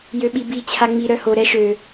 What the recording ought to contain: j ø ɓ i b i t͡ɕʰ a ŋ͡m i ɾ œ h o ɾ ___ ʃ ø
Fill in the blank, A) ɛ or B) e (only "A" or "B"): A